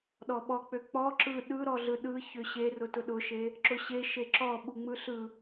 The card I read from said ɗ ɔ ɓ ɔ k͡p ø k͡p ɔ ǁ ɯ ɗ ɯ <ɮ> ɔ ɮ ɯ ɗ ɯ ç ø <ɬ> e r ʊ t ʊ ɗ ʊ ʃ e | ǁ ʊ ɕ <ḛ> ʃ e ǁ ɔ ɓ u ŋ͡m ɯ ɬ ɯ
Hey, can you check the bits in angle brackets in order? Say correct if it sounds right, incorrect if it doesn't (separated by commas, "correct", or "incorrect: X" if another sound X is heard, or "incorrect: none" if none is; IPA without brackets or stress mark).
incorrect: ɾ, incorrect: ɕ, incorrect: e